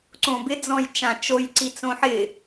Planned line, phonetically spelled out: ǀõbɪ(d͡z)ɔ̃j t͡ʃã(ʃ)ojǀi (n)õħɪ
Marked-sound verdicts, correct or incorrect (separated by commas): correct, incorrect, incorrect